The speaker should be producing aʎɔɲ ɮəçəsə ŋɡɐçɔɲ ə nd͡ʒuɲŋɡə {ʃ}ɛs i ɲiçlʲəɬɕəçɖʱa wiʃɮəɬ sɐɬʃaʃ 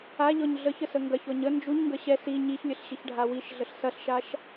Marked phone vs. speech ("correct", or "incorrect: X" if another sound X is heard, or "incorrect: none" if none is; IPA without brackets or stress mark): incorrect: ɕ